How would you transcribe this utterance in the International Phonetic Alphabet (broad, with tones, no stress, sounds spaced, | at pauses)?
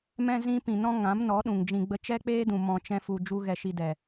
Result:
m ɛ̃˧ z ĩ˧ p ĩ˨ n ɔ̃˦ ŋ ã˨˦ m n ɔ˨˦ ɗ ũ˨ ŋ d͡ʒ ĩ˧ ɡ͡b ə˦ t͡ʃ ɛ˦ k͡p eː˦ d ũ˨ m ɔ̃˧ t͡ʃ ɛ̃˦ f u˧ d͡ʒ u˦ ɣ ɛ˧ ʃ i˧ d ɛ˨